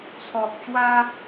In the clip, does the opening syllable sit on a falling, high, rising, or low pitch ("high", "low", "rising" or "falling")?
low